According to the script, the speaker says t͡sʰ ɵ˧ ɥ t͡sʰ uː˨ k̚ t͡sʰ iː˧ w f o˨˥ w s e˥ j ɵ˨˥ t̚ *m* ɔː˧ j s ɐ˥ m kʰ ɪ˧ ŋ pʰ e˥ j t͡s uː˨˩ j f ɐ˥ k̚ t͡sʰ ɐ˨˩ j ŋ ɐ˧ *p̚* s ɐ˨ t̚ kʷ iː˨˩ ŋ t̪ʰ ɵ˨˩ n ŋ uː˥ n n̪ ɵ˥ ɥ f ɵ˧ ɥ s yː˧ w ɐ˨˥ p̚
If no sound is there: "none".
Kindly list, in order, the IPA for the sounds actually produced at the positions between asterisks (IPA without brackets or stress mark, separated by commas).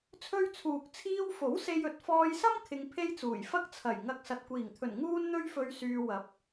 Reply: f, k̚